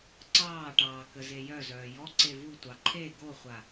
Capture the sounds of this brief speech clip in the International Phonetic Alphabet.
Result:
ǀɑːʈɑː kəzejœzœː jɔ ǀevutʷɑ ǃʰe ɡoχʷa

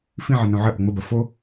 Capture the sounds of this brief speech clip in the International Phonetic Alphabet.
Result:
fĩʕɘnõ ʕəʔo ŋ͡məbɐ fo

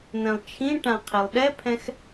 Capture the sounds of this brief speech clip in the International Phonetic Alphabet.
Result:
n̪ɛ̃lˠt͡ʃʰĩʈã qʰilˠɗɛpʰɛ̃x

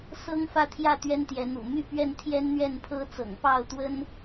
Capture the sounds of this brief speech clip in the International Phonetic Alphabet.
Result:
sɤ˦ŋfä˥˨t̪ʰjä˥˨ t̪ɥɛ˦nt̪jɛ˨˦n̪ṵ˨˩ my˥˨pɥɛ˥˨n t̪ʰjɛ˦n n̪ɥɛ˥˨npʰɤ˦t͡sɤ̰˨˩ŋ pɑ˥˨ʊ̯t̪wə˦n

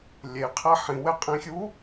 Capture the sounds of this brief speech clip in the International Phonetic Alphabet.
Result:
lʲeqʰɛ ħĩwɛqʼĩxʲu

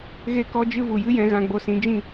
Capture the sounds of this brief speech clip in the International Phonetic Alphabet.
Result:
ɣe˦kɔ˦d͡ʒɨ˦ vu˨jɨ˦jɛ̃˧ ɣã˧ɡ͡bo˧sĩ˨˦ d͡ʒĩ˦˨

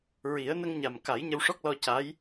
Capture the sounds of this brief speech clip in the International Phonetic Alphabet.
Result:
ɹi˨˩˦ə̯ nə˧ŋɲa˨˩m ka˨˩˦j ɲə˧wʂɔ˦˥k̚lɔ˧ ca˧˥j

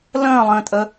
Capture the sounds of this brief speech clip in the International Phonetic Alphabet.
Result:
lə̃ːlˠə̃ːtʼə

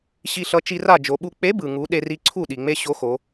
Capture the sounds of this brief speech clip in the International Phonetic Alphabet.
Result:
ɕi˧ɬʌ˨˥ t͡ʃi˧ra˥˩ d͡ʒo˩˧ɓu˧ k͡pe˨˥bɯ˩ŋu˩˧ ɗe˧ri˧ ǀʰu˥˩ ɗi˩ŋ͡me˧ ɕo˨˥xo˩˧

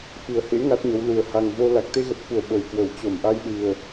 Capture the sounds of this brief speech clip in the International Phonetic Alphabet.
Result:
fɨ˨˩ə̯hḛ˧˥ ŋa˦˥t̚ɲə˨˦wlu˨˩ə̯ ha˨˩ŋvo˧ la˨˩k̚t̪e˧ɣə˨˩t̚fu˧˩ə̯ ɓə˨˩jkwə˧˩w t͡ɕo˧˩mʔa˧jɗɨ˨˩ə̯

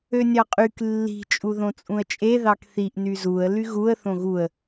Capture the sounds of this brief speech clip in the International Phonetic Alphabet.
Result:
ønʲɑqʼyk lːi̤ t͡ʃʼuðõt͡sʼũə̯t͡ʃʼe ðɑkθiʔ nyzuə̯ lyɣuə̯ θõɣuə̯

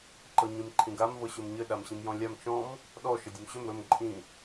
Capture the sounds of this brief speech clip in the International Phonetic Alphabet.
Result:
ǃɤɲĩmǃʰĩɡam vɤɕɵmɲɘ ɗamɕĩmjɔ̃lʲam t͡ʃɔ̃m | ɗɔ ʃɘdʲɵmɕɵm ɾɵm ǃʼĩ

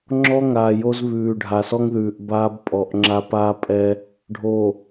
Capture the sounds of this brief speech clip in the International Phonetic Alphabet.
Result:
ŋ͡ǁɔ˦ŋaː˨ jo˦zβʉː˨ ɖʱa˨sɔ˦ŋðʉː˨ʔ baː˦bpʼɔ˨ʔ ŋ͡ǁa˦paː˦pʼɛ˦ | ɖʱo˨

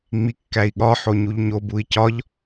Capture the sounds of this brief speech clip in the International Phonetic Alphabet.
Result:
ŋ͡mikːæi̯ɠɒ ħoɲuʎɲob ui̯cɒʎ

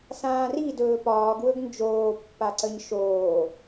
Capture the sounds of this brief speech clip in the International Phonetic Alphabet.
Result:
sãːri dɵːpɒːɡ wɵɡnd͡ʒoːpːa ǀəɲʃoː

